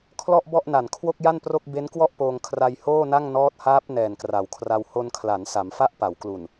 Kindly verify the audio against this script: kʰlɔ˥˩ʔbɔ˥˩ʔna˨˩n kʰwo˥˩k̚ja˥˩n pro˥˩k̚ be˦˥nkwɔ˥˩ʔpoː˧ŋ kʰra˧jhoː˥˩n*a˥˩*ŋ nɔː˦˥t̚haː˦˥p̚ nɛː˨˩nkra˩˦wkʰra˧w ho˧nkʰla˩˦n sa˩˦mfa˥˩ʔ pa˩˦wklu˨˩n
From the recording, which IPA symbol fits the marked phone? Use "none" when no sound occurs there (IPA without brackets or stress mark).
a˥˩